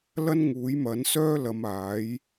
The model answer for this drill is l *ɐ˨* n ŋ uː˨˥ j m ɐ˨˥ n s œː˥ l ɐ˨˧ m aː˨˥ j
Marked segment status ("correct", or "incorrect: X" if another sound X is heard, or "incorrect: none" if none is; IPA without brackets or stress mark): incorrect: ɐ˥